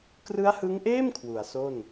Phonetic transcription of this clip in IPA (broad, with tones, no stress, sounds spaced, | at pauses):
k r ɯ˦˥ a̯ h ɯ˦˥ ŋ ʔ eː˥˩ m kʰ w u˩˦ a̯ s o˥˩ n